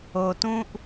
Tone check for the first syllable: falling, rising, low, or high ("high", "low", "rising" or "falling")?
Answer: low